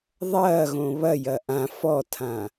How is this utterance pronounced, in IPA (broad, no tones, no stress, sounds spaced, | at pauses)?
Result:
ðˤ ɐː ɣ õ β ɐ j ɐ ʔ ã f ɔ tʰ ã